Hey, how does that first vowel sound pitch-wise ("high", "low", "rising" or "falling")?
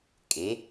rising